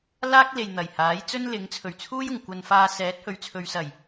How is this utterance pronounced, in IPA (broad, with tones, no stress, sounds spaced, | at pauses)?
l aː˥ k̚ l e˨ j n̪ ɐ˨˩ j h aː˨˥ j t͡s ɵ˥ n l ɪ˨˥ ŋ t͡sʰ ɵ˨˩ ɥ t͡sʰ uː˥ j ʊ˨˩ ŋ kʷ ɐ˨ n f aː˨ s ɛː˨˥ t̚ h ɵ˨˥ ɥ t͡sʰ ɵ˨˧ ɥ s ɐ˨˩ j